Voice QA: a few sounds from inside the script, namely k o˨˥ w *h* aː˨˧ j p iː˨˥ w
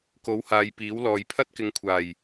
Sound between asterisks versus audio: correct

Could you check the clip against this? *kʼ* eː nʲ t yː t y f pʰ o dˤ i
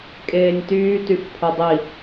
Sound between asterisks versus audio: correct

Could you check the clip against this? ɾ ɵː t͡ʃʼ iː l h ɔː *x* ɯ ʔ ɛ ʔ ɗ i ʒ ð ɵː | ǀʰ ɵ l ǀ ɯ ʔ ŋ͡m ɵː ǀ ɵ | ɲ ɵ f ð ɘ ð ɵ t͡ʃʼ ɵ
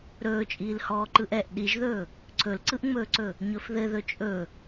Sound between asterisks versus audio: incorrect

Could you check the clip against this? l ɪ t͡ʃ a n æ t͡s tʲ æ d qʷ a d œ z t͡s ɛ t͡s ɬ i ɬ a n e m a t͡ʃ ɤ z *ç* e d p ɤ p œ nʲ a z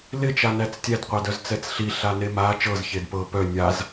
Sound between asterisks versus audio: correct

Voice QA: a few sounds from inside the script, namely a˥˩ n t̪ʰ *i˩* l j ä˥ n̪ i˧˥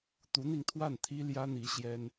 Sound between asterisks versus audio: incorrect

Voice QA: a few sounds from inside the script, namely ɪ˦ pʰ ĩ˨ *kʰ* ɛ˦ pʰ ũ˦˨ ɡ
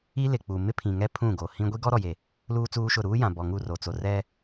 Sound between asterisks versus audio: incorrect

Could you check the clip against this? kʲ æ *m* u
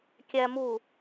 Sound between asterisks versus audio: correct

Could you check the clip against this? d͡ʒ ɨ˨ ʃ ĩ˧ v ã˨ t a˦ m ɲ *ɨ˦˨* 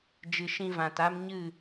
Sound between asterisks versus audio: correct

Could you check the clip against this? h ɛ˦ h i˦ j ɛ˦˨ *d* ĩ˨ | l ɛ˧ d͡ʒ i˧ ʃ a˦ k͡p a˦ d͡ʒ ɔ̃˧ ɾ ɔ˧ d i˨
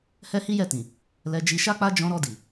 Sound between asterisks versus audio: incorrect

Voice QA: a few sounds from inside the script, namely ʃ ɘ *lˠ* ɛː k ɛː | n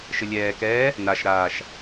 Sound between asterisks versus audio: incorrect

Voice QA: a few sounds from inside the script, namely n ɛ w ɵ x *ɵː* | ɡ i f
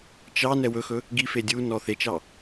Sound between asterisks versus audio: incorrect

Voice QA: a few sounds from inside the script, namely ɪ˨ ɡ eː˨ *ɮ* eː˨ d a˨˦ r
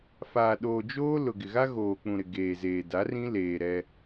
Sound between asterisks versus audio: incorrect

